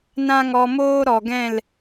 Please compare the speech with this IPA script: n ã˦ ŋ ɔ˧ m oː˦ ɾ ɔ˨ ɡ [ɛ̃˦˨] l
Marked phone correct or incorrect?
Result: correct